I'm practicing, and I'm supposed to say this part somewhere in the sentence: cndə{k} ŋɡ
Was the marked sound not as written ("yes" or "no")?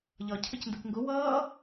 no